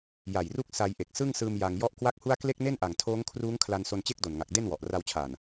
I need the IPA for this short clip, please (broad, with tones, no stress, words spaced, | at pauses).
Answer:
ja˨˩jru˥˩k̚ sa˧jʔe˨˩k̚ sɯ˥˩ŋsɯː˧m ja˧ŋ jɔ˦˥ʔkwa˥˩k̚hu˥˩a̯ kle˥˩k̚ne˥˩nʔa˨˩ŋ tʰoː˦˥ŋkʰruː˦˥ŋkʰla˧n so˧nt͡ɕe˥˩k̚do˨˩nŋa˨˩k̚ de˥˩nwɔ˨˩ʔra˧wt͡ɕʰaː˨˩n